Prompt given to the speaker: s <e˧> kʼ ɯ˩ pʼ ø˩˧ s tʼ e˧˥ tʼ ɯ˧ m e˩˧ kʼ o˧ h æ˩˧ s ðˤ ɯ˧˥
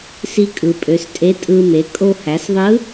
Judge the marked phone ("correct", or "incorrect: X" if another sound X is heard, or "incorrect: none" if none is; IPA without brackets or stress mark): incorrect: i˧